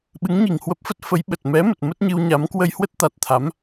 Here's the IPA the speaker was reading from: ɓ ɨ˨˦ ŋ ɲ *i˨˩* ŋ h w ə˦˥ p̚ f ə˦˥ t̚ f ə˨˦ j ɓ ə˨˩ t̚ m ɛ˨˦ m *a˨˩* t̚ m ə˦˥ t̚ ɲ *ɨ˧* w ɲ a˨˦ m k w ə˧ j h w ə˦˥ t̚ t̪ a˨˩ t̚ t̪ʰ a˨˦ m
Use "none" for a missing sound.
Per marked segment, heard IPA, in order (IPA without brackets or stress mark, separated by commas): i˨˩, ə˨˩, ɨ˧